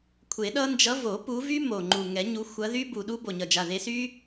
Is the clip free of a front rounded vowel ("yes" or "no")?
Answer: no